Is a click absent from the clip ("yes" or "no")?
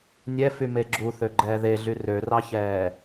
no